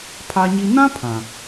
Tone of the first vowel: high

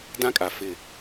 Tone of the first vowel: high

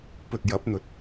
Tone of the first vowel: low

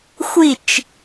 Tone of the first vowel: falling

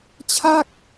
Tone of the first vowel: falling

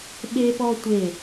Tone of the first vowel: high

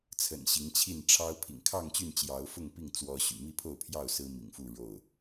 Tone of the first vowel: low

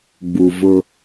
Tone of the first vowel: low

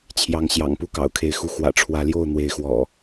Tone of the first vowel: rising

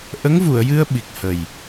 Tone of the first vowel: rising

